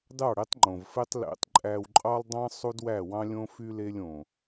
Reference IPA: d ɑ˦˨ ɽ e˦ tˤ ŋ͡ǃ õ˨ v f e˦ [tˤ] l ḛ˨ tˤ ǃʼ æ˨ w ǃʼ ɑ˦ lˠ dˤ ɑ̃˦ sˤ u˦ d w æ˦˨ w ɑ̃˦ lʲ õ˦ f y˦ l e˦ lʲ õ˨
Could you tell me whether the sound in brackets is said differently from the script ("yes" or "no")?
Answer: no